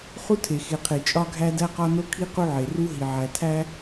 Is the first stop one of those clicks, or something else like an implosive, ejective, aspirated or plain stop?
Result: aspirated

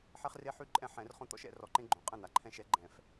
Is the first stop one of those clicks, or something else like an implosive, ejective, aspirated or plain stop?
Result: click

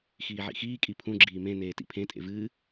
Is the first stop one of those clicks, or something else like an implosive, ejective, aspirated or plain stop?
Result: ejective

